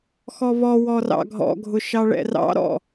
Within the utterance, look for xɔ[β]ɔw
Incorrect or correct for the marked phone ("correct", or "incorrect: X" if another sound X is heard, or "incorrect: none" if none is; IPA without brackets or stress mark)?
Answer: correct